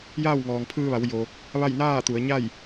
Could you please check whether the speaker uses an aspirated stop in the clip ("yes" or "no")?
yes